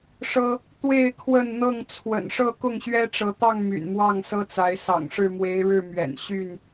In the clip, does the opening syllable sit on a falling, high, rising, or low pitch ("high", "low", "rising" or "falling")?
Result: high